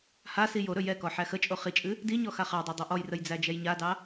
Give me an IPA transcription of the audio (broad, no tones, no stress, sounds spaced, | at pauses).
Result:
h a s i j o ɾ ɵ j ɛ k ɔ ħ æ x ə t͡ʃʼ o χ i t͡ʃʼ ɨ | d i ɲ ɔ x a χ ɑ dˤ æ dˤ o ʔ ɔ j r ə j d͡z æ d͡ʒ ɛ j ɲ a d ɑ